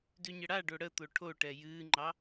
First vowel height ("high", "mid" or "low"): high